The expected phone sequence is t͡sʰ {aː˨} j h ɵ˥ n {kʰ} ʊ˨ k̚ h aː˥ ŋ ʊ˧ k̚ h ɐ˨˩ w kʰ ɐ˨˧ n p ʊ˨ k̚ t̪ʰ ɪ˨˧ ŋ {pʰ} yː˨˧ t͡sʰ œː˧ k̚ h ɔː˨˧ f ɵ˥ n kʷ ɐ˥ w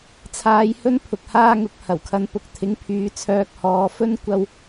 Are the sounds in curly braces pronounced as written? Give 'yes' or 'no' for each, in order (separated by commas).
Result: no, no, yes